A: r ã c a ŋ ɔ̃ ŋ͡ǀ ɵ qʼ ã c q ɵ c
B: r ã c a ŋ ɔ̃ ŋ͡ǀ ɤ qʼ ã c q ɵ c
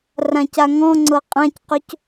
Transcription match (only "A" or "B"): B